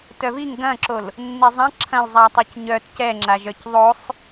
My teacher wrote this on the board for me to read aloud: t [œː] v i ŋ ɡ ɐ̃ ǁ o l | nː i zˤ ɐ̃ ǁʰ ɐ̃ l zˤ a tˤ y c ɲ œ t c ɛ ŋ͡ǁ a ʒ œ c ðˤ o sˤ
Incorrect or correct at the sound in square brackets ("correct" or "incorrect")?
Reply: incorrect